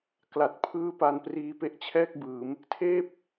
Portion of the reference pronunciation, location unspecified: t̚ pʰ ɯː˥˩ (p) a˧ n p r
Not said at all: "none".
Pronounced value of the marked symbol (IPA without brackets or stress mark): p